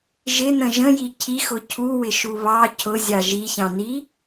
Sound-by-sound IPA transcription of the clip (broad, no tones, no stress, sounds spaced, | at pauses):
ʒ ɪ n ə̃ ʒ ə̃ j i cʰ i x ʊ cʰ u w ɪ ʃ u β ɑ cʰ ʊ zʲ ɑ ʒ i ç ɑ̃ n i